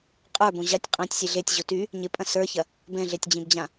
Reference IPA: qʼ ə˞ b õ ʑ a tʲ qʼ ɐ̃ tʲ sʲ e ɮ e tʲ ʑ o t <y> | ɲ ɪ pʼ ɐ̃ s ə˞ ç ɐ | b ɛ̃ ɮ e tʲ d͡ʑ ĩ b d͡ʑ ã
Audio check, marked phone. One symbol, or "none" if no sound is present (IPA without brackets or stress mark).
y